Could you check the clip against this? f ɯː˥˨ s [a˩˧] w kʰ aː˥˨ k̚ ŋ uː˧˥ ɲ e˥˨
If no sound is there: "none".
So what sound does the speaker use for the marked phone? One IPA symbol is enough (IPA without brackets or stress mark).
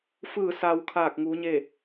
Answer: a˧